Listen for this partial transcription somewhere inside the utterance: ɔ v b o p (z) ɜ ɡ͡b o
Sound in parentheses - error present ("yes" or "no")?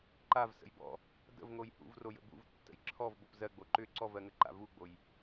no